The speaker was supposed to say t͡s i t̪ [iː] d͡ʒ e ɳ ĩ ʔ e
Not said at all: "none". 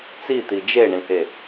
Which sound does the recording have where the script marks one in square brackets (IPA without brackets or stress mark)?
i